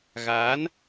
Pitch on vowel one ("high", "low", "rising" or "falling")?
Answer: rising